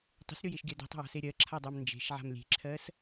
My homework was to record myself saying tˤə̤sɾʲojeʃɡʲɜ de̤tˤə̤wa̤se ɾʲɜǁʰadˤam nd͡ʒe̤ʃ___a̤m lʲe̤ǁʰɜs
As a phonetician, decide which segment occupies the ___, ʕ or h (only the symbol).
ʕ